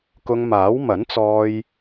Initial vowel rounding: rounded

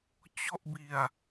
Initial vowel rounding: rounded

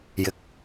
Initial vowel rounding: unrounded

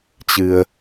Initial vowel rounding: unrounded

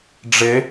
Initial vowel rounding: unrounded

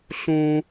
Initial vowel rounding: rounded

